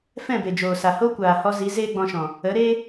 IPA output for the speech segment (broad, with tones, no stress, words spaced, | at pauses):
fɛ̃˦˨be˨d͡ʒoː˨sa˨ ho˦kʷaː˨hɔ˧zi˨˦ zeː˦ɡ͡bɔ̃˧ʃɔ̃˨ | ə˨˦ɾe˦